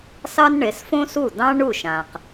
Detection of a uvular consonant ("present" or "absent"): present